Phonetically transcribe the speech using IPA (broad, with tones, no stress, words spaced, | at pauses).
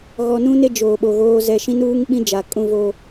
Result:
ɣɔ˨nũ˦ne˦ d͡ʒoː˨ɓo˨ɣoː˦zɛ˦ ʃĩ˦nuː˦ŋɓĩ˦d͡ʒa˨ kʼũ˦vo˦